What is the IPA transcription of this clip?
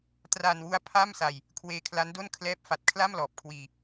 traː˧nwu˦˥a̯ pʰa˥˩msa˧j | kʰweː˧kʰla˦˥ndo˥˩n kʰlɛː˦˥p̚fa˨˩t̚kʰla˥˩m lɔː˨˩p̚kʰwiː˧

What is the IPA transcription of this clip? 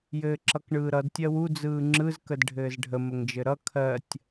jɘːǁʌkɳɯːɾʌd tʲɜwu d͡zɯːŋ͡ǁɯz kədɖʱɘːzɖʱə məŋd͡ʒɘɾʌ kʰɜtʲ

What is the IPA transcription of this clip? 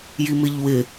jimɪʎwɪ

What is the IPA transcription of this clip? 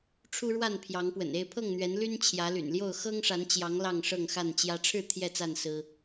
ʈ͡ʂʰu˦ɻwa˥˨npʰjɑ˨˦ŋ pwə̰˨˩ne˥˨ɪ̯pʰɤ˥˨ŋn̪ɥɛ˨˦n ly˦n t͡ɕʰjä˨˦ly̰˨˩nljo˥˨ʊ̯ xɤ˦ŋʂa˨˦nt͡ɕjɑ˨˦ŋ lɑ˥˨ŋʂɤ˥˨ŋxa˥˨nt͡ɕjä˦ ʈ͡ʂʰɻ̩˥˨ t̪ʰjɛ˥˨t͡sa˥˨n sɹ̩˦

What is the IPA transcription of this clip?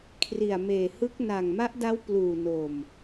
kʰri˨˩a̯ meː˨˩hɯ˦˥k̚ na˨˩ŋma˦˥ʔda˦˥w pluː˨˩no˨˩m

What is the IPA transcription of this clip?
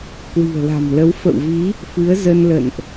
kwi̤˨˩ə̯la̤˨˩mlə˨˦w fə̰˧˨wvi˨˦ | fɨ˨˦ə̯zə˧nlə̰˧˨nʔ

